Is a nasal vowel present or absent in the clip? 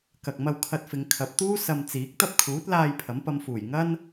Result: absent